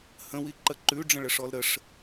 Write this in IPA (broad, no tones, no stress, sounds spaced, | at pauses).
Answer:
h ə̃ w i ǃ ə ǃ ʉ ɖ͡ʐ ə̃ ɭ ə ʂ ɔ l ɾ ə ʂ